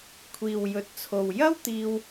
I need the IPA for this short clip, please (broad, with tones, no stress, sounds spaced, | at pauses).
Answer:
kʷʰ iː˨ w j ɵ˨ t̚ t͡sʰ o˨ w j ɐ˥ w t̪ iː˧ w